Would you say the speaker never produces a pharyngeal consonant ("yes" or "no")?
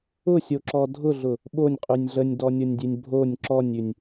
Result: yes